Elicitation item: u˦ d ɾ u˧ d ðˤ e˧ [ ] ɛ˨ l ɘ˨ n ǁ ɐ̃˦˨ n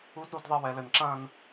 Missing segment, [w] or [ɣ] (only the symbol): w